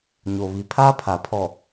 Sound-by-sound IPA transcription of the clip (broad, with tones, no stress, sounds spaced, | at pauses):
ɲ o˨ β i˨ pʰ aː˦ pʰ a˨ pʰ ɔ˨